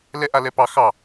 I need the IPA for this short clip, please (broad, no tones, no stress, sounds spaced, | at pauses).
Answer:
l ɛ ʔ a l ɛ p ɑ x ɑ